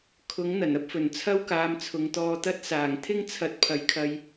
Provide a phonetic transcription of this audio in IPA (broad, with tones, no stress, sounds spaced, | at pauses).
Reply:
kʰ ʊ˨˥ ŋ n̪ ɐ˨˩ n ɐ˥ p̚ f ɵ˨˩ n t͡sʰ ɐ˥ w k aː˧ m t͡sʰ ʊ˨˧ ŋ t̪ ɔː˧ t̪ ɐ˥ t̚ s aː˨˩ ŋ t̪ʰ ɪ˥ ŋ t͡sʰ ɐ˨˥ t̚ pʰ ɐ˨˥ j kʰ ɐ˧ j